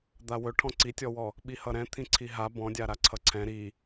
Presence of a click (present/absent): present